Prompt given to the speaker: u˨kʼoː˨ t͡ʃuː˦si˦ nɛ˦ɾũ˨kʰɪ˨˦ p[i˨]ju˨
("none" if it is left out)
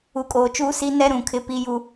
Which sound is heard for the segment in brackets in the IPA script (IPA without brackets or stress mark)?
i˨